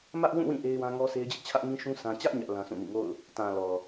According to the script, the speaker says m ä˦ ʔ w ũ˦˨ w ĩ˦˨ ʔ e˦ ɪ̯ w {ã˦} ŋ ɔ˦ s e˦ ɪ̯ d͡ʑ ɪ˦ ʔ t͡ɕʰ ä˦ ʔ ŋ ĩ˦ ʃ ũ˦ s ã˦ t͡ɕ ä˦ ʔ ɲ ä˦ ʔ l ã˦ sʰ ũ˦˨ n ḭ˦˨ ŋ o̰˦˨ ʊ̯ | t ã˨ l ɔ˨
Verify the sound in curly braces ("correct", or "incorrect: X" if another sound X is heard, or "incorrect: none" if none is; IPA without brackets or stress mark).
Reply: correct